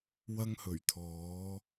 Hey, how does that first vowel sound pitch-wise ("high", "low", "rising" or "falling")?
high